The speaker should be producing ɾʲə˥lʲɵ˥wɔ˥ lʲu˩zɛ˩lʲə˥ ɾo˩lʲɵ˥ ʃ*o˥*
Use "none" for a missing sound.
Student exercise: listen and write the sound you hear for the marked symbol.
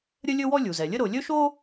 o˥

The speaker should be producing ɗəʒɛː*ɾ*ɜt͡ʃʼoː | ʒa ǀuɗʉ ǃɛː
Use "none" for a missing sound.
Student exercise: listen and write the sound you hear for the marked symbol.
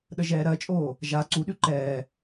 ɾ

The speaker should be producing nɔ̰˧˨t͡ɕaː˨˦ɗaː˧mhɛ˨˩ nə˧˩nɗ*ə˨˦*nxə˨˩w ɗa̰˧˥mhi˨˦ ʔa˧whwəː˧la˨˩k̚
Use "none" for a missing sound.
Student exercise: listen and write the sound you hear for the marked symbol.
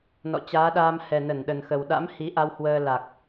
ə˨˩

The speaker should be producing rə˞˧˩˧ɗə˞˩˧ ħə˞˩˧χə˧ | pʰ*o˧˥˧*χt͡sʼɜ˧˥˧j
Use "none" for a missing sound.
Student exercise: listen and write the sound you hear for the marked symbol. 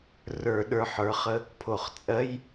o˧˩˧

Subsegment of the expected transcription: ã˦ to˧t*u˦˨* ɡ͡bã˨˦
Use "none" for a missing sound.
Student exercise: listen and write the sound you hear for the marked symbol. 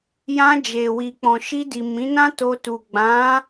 u˨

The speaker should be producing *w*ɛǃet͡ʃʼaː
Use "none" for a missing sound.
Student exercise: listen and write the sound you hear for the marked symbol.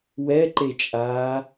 w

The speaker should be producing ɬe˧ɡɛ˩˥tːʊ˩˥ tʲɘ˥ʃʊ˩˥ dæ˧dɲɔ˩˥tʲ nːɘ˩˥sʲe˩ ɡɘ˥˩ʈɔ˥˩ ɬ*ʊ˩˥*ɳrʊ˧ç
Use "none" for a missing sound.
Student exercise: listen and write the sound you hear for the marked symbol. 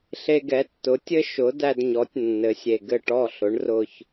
ʊ˩˥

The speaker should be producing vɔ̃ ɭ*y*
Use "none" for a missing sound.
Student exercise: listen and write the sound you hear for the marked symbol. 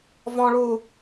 u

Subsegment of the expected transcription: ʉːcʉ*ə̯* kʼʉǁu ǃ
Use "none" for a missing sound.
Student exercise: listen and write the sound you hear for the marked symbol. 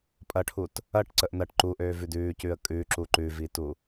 ə̯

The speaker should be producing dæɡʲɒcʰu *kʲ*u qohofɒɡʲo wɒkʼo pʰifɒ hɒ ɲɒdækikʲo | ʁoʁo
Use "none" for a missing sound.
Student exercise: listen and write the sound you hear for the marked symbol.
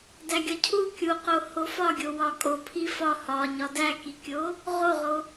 kʲ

